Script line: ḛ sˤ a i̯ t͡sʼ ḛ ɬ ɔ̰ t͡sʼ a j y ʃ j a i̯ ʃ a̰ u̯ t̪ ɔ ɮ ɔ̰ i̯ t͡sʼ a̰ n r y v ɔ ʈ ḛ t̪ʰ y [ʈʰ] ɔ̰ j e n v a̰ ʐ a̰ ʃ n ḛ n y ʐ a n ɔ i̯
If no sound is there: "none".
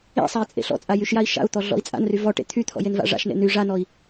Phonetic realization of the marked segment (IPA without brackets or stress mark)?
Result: t̪ʰ